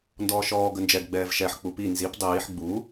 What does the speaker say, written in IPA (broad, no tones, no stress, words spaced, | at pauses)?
ndɔːʃɔː ɡənd͡ʒɛɡ ɡ͡bɛːvʃɛħ k͡pupi nzip dˤiːħ ɡ͡bu